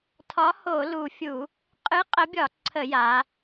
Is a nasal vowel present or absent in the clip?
absent